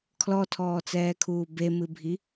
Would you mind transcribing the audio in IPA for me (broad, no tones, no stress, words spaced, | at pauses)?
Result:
kʰlɔtʰɔːt͡sɛːkʰuː bemɨbʱi